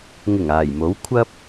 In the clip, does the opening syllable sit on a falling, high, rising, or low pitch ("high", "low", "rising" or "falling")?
low